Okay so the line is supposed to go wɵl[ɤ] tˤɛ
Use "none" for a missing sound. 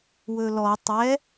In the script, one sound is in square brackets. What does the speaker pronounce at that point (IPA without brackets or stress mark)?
ɔ